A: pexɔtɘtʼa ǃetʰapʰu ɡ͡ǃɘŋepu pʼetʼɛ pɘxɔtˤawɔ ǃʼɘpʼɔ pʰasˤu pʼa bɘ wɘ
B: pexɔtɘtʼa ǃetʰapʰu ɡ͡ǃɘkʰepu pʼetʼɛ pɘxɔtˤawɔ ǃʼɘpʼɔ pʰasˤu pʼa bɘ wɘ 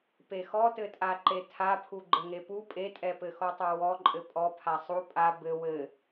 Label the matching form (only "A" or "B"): A